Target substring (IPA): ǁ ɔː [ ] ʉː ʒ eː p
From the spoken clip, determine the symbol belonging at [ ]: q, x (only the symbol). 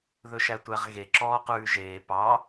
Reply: q